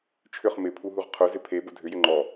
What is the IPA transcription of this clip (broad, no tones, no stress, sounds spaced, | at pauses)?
t͡ʃʰ ʏ χ m ɪ pʰ u ɦ u ʁ qʰ ʊ z ɪ pʰ e b ʊ dʱ ʏ j ʏ ŋ͡ǃ ɔ